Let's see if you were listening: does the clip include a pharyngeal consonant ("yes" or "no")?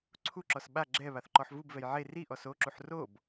yes